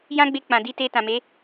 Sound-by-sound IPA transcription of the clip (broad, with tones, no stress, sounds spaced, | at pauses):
j ã˦ ɡ͡b e˧ k͡p ã˨ d i˧ t e˧ t ã˨ m e˨˦